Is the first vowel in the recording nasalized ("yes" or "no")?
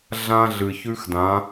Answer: yes